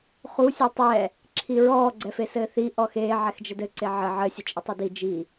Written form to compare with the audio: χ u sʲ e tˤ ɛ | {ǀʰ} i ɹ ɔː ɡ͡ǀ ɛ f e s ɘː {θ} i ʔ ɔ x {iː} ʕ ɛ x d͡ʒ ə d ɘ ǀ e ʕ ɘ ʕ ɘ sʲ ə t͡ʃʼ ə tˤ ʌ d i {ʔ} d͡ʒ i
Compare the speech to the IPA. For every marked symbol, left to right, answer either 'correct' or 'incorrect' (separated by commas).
incorrect, correct, incorrect, incorrect